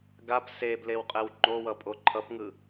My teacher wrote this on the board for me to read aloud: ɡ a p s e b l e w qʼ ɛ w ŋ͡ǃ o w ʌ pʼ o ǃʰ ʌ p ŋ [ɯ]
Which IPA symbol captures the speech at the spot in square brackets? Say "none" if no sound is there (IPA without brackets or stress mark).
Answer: ɯ